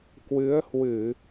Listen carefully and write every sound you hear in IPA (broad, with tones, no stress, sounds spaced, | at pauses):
k w ɨ˨˦ ə̯ h w ɨ˧˩˨